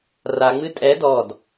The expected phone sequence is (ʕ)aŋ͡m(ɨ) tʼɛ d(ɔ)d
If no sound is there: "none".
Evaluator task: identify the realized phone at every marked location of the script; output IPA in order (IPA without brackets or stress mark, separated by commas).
r, ɨ, ɔ